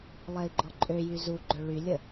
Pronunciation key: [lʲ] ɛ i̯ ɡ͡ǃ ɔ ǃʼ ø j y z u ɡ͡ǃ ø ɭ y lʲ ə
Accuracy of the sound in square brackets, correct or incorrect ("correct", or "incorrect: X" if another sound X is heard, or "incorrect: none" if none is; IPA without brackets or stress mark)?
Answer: incorrect: lˠ